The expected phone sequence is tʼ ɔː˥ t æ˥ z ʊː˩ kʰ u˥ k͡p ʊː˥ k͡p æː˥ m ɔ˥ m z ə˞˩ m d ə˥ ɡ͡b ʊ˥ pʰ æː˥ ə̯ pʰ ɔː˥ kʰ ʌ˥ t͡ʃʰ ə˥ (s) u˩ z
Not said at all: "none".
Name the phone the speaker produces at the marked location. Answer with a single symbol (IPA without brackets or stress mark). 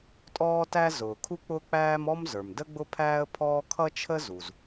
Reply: z